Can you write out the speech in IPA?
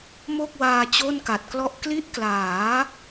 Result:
m o˥˩ k̚ w aː˧ t͡ɕ o˥˩ n k a˨˩ t̚ k l ɔ˥˩ ʔ k l i˦˥ ʔ k l aː˩˦

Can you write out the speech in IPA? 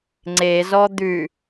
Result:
ŋ͡ǀ e z ɔ d̪ ʉ

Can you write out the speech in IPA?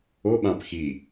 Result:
o ɓ ã p x i

